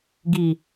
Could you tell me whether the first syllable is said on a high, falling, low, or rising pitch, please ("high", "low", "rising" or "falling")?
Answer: low